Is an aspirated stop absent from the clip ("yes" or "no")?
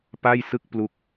yes